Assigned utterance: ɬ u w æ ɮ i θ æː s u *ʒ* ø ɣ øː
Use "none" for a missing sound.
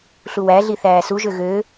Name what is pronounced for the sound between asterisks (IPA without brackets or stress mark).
ʒ